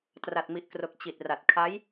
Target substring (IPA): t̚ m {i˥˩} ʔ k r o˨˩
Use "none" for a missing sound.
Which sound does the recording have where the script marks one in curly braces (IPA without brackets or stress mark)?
i˨˩